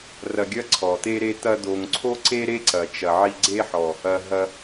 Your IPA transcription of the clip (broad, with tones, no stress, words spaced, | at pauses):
rɐ˧ɡʲɐ˦ǀʰɔ˨t̪e˦ ɾe˧t̪ɐ˧d̪o˨ŋǀʰo˦ ǀe˦ɾe˦ ǀɐ˨t͡ʃɐ˨ ʕi˧ɡ͡ǀe˦ħɔ˨ | ɐ˧ ɦɐ˧